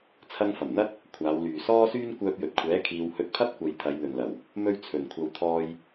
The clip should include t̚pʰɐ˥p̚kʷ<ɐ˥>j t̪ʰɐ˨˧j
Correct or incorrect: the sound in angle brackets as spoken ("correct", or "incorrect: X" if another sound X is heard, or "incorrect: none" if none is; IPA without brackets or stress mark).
incorrect: ɐ˨˧